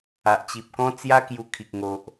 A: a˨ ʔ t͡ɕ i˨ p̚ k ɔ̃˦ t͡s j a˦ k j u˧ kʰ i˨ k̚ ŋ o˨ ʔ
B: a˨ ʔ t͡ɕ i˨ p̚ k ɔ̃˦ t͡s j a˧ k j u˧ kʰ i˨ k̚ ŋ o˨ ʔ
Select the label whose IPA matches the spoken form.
A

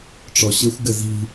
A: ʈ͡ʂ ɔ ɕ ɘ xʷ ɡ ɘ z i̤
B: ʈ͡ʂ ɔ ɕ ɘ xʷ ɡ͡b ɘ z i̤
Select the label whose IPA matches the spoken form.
A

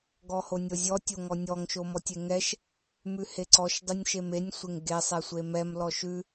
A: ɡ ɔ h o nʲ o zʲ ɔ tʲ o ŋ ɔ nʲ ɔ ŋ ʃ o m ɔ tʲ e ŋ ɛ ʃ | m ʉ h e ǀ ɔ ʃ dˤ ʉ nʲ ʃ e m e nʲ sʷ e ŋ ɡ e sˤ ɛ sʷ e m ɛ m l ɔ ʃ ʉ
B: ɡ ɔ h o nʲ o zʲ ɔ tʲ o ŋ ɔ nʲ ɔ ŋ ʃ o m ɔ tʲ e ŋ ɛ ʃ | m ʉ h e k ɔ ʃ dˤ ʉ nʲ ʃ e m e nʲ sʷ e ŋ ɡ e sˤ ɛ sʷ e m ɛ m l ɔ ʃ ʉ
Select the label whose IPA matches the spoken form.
A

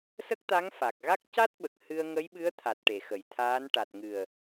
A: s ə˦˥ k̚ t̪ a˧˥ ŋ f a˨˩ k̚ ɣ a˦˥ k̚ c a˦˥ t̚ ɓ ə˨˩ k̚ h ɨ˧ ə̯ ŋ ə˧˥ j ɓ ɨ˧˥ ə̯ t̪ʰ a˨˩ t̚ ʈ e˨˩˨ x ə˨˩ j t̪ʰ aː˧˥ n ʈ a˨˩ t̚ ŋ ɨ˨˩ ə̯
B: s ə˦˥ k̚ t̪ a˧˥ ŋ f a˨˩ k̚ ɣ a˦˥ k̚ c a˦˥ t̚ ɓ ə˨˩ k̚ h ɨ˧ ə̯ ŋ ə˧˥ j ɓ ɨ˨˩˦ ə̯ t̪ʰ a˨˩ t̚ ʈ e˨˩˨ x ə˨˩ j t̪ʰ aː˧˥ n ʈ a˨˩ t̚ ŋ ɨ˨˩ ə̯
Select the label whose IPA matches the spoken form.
A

